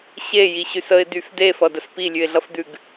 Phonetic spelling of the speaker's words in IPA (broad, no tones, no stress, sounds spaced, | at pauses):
ɕ e j i ɕ y s ə ɪ̯ d̪ y f d e f ʌ d ə s p i lʲ ʉ ɪ̯ ɮ ʌ f d̪ ʉ ɡ